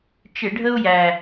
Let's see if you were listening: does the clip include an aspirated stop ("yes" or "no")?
no